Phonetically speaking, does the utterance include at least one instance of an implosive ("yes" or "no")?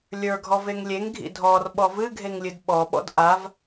yes